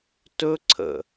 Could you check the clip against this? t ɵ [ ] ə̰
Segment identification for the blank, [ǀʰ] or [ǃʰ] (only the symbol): ǀʰ